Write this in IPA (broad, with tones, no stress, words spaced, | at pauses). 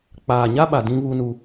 k͡paː˨ɲa˦ɓa˨ dĩ˦βu˦nu˦